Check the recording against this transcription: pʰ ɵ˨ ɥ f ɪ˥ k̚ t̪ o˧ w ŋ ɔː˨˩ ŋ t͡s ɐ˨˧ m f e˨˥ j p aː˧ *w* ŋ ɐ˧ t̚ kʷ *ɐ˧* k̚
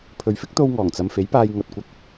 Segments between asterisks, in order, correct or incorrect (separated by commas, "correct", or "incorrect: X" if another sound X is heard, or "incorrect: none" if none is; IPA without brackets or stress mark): incorrect: j, correct